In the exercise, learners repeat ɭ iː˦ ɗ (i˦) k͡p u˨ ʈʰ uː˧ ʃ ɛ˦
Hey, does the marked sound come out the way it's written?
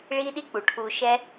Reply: yes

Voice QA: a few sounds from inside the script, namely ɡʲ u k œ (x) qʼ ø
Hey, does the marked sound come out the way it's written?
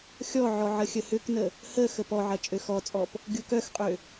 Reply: yes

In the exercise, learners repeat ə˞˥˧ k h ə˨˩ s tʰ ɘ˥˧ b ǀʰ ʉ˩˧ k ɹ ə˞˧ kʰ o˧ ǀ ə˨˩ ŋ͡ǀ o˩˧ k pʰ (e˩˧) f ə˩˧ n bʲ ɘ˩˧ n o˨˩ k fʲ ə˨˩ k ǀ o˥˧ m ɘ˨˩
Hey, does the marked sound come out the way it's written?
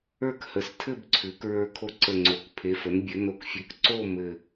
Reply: yes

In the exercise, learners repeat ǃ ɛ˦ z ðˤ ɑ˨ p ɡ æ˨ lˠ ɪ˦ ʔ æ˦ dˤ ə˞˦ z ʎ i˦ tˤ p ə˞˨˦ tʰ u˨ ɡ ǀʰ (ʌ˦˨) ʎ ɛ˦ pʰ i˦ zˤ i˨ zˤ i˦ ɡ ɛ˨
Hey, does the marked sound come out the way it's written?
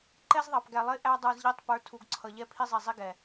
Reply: no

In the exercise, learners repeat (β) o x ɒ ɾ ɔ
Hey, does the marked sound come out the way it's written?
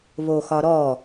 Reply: yes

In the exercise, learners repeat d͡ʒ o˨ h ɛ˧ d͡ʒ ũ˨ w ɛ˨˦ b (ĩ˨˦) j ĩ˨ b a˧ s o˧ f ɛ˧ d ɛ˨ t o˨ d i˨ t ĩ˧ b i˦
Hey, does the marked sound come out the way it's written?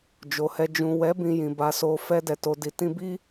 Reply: no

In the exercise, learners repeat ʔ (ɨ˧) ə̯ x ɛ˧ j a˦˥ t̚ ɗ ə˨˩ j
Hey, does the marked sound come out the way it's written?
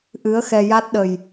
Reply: no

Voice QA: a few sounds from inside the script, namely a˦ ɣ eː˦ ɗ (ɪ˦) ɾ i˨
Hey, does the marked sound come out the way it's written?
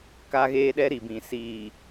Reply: no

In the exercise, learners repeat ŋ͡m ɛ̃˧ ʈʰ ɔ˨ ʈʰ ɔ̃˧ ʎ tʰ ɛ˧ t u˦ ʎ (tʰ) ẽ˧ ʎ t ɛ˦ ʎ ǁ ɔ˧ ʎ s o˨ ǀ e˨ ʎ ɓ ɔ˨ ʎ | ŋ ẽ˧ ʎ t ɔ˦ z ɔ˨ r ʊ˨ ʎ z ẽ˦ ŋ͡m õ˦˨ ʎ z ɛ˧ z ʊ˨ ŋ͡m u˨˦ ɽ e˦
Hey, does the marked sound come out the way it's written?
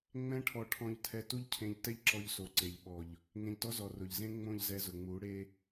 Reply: no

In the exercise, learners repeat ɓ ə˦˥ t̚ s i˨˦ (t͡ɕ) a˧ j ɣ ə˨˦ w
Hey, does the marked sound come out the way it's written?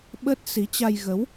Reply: yes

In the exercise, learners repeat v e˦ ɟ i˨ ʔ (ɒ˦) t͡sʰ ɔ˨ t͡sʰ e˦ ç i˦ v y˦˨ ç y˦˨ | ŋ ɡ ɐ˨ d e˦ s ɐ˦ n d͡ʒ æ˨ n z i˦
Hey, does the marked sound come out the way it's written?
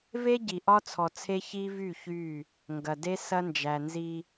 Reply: yes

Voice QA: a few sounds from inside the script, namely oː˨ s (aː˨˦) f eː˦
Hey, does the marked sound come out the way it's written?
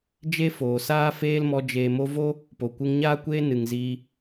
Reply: no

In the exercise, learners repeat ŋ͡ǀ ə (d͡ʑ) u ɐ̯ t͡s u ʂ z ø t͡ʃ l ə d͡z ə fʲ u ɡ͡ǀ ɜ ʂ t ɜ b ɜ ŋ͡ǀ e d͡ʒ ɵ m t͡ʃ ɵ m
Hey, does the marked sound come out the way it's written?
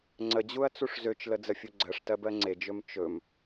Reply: yes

